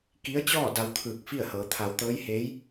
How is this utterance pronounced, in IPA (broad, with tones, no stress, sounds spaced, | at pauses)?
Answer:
k i˧˥ ə̯ t͡ɕ ɔː˥˨ d a˧ w t̪ʰ ɯː˧˩ k̚ f i˥˨ ə̯ h ɤː˩˧ t̪ʰ a˩˧ w t̪ ɤː˧˥ j h eː˧˥ j